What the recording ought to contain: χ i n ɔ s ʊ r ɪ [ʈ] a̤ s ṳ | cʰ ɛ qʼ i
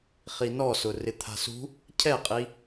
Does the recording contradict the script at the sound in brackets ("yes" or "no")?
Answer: yes